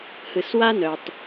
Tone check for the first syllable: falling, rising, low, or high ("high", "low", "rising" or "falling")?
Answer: low